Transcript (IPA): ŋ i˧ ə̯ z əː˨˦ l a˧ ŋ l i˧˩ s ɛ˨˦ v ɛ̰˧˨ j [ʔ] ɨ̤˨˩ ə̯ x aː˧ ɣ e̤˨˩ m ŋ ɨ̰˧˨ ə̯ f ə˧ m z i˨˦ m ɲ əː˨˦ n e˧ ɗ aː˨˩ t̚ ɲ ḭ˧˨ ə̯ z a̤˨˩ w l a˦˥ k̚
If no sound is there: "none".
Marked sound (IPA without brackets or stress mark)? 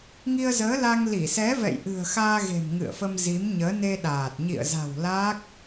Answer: ʔ